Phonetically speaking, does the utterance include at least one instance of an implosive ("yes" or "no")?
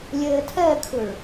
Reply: no